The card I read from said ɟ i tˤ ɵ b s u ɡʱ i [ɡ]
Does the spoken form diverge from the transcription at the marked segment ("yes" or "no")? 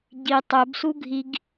no